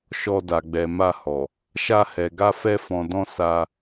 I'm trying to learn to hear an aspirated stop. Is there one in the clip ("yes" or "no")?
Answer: no